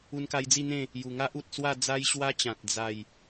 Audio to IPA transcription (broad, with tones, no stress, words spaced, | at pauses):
u˧nka˧jd͡zi˥˧n̪ẽ˥˧ | ju˨˩ŋa˦ʔ u˨t̚swa˥˧ d͡za˦jɕwa˦t͡ɕã˨t̚ d͡za˥˧j